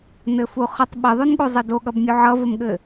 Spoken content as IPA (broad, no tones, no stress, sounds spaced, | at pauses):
n ɘ f u χ ə tˤ ɓ ɘ ðˤ o n ɠ u zˤ ʌ d o ɠ ʌ b mʲ u ʕ ʌ v ə m ɠ ɘ